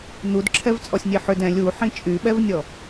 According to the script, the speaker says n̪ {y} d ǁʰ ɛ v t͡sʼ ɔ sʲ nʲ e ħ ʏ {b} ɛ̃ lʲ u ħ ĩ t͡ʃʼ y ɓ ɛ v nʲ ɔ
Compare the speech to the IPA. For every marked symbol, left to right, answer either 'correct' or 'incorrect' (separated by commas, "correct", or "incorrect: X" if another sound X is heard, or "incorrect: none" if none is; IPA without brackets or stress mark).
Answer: incorrect: u, incorrect: d